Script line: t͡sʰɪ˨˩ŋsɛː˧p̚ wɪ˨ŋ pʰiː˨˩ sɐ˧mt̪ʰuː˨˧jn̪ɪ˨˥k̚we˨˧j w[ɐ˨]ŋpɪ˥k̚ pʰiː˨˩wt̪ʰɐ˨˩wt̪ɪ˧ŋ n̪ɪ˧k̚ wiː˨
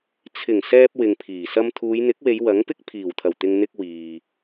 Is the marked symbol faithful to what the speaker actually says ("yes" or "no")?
no